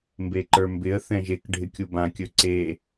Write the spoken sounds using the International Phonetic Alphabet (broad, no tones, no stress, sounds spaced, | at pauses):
m b e ǃ ə˞ m b ɪ ə̯ θ ɛ̃ ʒ e k ɖʱ ɪ kʲ u b ã kʲ ɵ ǀ e